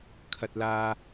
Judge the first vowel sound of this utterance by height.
low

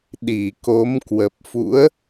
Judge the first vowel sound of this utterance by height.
high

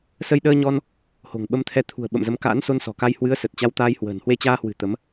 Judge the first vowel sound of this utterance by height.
mid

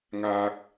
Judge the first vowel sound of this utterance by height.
low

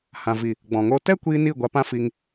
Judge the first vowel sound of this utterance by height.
low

